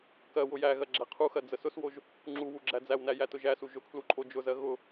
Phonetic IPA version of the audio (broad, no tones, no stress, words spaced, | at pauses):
kɜ wʊjæɣɜ ɡ͡ǁæqʰuxɜ d͡zəsʊswoʒ | ŋ͡ǁu wuɡ͡ǁæd͡zæwnæ jætʊʒæsu ʒʊkʰlu ǃʼod͡ʒʊzɜ ɣʊ